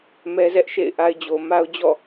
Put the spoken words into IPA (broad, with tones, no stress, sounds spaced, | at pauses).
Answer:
m ɛ˦ z ɛ˦ ʔ ʃ ḛ˦˨ ɪ̯ ʔ a˦ ɪ̯ d͡ʑ o˨ m a˦ ʊ̯ d͡ʑ ɔ̰˦˨